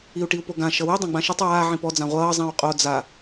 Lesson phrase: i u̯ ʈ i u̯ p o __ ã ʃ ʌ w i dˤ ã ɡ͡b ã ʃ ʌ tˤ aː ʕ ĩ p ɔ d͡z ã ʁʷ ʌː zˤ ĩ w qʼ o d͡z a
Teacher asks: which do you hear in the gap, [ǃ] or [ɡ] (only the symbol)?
ɡ